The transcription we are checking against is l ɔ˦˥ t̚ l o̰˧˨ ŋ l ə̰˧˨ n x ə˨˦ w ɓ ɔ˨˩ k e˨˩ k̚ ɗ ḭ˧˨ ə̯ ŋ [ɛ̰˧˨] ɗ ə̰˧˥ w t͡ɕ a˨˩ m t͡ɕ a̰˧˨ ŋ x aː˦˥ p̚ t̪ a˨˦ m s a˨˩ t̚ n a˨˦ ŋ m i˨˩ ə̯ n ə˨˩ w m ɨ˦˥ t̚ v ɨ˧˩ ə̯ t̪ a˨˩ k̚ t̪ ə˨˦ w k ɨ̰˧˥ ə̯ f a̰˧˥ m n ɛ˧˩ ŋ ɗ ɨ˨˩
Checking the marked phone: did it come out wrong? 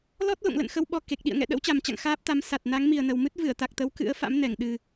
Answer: no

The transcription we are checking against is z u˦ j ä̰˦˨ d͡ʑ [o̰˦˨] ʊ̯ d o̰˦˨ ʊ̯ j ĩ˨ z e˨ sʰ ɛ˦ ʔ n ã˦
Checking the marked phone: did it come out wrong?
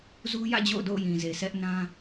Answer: no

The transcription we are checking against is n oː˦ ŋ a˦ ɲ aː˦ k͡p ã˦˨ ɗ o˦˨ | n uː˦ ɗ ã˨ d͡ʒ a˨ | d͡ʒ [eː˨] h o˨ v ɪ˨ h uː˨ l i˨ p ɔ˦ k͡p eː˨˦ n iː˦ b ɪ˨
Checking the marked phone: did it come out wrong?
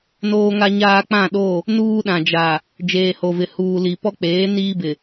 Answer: no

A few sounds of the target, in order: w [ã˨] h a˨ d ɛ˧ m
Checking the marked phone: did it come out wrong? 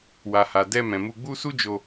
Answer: yes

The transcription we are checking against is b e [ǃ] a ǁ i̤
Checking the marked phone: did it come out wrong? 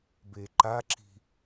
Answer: no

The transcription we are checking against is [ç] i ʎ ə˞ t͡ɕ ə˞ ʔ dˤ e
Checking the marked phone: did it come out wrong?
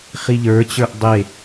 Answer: yes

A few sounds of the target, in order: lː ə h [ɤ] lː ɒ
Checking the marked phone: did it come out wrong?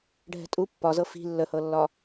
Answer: no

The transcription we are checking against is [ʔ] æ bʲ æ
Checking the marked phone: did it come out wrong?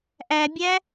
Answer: no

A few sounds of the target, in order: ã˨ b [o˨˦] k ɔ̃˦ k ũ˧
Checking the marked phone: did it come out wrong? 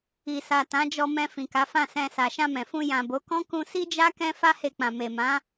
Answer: no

